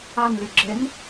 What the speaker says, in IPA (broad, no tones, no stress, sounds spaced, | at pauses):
a n l y ɡ͡ǁ e n